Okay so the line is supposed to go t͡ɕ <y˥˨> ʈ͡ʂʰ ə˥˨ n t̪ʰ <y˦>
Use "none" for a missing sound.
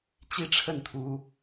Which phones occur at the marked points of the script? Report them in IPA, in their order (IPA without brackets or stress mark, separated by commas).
i˥˨, u˦